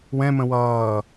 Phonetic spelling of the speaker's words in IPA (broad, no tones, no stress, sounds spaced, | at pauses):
w ɛ̃ m ə̃ w ʌː